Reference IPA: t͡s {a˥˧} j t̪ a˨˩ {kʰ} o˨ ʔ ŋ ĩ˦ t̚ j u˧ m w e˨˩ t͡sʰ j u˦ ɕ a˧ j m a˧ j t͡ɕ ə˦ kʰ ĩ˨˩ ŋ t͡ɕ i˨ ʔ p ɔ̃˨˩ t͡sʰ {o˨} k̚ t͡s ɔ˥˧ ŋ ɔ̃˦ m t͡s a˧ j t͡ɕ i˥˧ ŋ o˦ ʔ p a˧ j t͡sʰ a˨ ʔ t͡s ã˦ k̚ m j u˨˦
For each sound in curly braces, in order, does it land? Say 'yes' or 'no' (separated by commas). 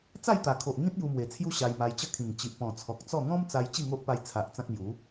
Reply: yes, yes, no